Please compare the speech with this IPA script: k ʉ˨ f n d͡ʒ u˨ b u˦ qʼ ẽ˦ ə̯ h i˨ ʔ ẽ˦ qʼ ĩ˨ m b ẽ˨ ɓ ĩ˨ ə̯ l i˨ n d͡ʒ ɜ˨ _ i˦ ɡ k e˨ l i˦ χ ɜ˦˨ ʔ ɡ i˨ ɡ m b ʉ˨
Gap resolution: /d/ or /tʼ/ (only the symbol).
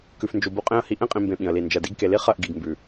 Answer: d